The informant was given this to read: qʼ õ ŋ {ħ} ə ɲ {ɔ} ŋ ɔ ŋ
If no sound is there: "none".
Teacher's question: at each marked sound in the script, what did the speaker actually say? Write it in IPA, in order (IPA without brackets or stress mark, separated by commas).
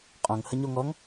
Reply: h, o